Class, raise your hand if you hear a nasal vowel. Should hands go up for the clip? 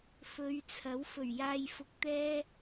no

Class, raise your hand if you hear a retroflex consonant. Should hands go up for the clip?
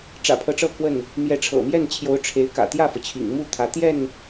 yes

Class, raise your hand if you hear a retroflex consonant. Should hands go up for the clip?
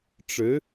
yes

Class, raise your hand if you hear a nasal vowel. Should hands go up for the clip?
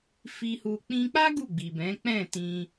yes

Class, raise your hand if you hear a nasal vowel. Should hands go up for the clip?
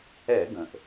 yes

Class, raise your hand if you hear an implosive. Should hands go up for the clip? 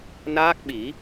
yes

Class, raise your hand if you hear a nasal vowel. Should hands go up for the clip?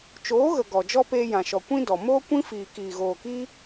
yes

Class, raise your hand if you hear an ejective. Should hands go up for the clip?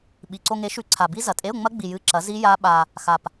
yes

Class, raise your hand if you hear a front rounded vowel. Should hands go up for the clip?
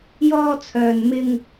yes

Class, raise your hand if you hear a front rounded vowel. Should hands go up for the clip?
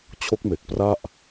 no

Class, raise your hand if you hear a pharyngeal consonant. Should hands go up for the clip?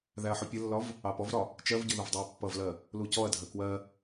yes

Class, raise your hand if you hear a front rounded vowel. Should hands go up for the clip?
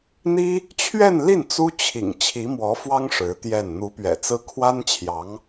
no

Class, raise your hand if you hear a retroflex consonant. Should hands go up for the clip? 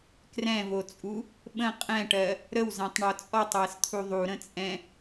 yes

